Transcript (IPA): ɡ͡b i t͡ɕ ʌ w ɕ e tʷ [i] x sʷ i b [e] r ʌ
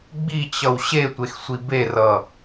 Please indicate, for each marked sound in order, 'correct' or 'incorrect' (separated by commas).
incorrect, correct